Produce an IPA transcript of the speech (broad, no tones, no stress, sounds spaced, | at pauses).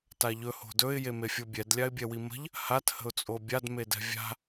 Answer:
t a ʎ ɵ h o̤ d ɵ ɪ̯ j e m e fʲ o bʲ ɛ d lʲ a ɪ̯ bʲ ɛ w i m ə̤ ʎ | h a t h ə̤ ʊ̯ t͡sʼ o bʲ a d m e d ɛ̤ vʲ a̤